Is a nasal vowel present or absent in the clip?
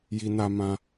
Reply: present